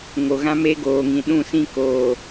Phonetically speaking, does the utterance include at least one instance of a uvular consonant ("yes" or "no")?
no